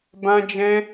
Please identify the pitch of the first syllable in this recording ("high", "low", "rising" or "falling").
high